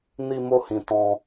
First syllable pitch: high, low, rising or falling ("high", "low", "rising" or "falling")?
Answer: high